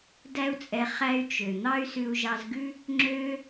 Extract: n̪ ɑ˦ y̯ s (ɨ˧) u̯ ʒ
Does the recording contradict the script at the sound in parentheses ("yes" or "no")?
yes